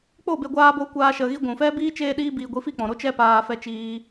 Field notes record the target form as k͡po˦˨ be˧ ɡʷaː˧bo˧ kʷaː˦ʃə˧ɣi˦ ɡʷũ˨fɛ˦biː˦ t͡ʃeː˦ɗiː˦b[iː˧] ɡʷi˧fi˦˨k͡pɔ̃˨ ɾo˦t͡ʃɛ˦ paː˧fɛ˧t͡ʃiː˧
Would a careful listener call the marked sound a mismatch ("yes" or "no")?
no